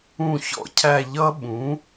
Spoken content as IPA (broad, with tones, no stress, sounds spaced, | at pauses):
ũ˥˨ ç ɔ̰˥˨ cʰ æ˥˨ ʎ ʌ˦˥ ɓ ũ˩˥